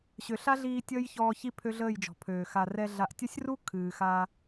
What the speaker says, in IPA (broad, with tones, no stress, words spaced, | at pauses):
ɕø˨ɬa˦ɮiː˧ tʲəː˦jçɔː˧ çi˧ pʰø˦ɮəː˦˨jd͡ʒɔ̤˨pʰøː˨ xa˨rɛ˧ ɮa˨ʔtʲɐ˦sʲru˦ kʰɨː˨xa˧